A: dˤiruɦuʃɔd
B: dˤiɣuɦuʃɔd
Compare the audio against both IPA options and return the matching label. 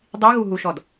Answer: B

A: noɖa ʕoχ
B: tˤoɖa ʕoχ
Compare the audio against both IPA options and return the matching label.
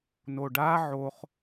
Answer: A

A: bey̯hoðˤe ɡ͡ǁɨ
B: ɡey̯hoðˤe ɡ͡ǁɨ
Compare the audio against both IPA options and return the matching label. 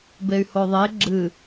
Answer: A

